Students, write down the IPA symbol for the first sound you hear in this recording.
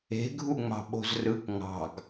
e̤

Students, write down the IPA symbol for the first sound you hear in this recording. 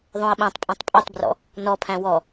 ðˤ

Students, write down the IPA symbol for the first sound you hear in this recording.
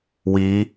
w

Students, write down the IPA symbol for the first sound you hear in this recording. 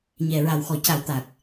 ɲ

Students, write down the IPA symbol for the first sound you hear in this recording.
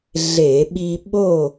ɮ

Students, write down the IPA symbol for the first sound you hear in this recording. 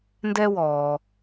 n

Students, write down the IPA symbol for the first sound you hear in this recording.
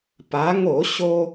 p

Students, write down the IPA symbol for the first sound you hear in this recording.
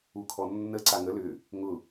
u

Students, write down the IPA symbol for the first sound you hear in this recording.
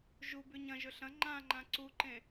ʒ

